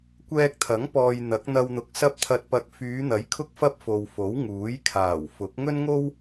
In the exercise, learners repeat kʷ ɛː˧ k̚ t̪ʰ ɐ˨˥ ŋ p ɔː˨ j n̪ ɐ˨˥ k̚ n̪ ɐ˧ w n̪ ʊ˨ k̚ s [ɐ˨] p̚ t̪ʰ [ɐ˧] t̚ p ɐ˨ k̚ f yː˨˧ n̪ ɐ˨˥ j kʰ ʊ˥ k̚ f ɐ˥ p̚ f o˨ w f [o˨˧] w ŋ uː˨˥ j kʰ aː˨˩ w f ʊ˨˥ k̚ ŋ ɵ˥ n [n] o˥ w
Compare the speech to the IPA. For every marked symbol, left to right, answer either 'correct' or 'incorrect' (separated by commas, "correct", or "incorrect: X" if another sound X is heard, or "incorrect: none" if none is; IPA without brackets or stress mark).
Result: incorrect: ɐ˥, correct, incorrect: o˨˥, incorrect: ŋ